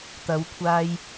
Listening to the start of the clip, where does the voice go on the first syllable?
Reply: rising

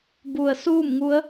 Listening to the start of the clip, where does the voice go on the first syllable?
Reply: low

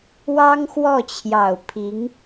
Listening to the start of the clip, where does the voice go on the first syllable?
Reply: high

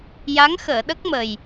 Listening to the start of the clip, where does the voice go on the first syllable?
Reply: rising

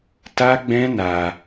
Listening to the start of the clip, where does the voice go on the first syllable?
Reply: high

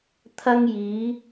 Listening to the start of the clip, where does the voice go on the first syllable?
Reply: high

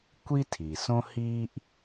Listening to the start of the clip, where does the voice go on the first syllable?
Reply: high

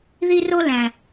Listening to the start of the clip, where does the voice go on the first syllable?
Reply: high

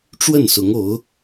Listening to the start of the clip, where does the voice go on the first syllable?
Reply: falling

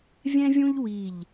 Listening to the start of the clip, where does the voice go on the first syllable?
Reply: high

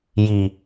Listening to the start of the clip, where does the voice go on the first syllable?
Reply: low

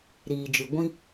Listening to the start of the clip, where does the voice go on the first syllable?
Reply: low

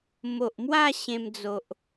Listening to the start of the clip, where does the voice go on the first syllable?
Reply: low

